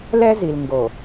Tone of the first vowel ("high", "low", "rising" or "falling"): high